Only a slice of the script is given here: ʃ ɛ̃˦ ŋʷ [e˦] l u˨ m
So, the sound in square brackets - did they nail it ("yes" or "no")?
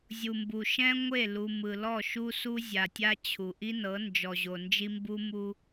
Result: no